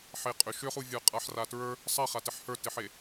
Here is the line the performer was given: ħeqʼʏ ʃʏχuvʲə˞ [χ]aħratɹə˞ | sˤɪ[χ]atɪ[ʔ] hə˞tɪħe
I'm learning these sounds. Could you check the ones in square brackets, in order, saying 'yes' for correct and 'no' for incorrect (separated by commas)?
no, yes, no